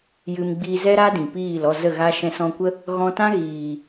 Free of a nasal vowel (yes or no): no